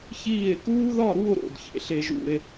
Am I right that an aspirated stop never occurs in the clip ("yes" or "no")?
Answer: yes